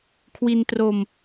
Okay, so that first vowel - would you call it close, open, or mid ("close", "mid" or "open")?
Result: close